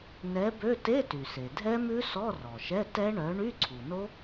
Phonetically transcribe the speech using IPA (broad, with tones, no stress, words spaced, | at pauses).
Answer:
nɛ˨˥bø˧˥˧ te˧˥˧ty˩se˩ dʱɛ˦˥mʉ˦˥ sɔ˧˥˧rɔ˩ʃɛ˧˥˧ tɛ˦˥ɳœ˨˥ ɳy˧˥˧ǀʰu˩no˦˥